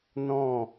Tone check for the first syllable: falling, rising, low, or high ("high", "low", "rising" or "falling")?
falling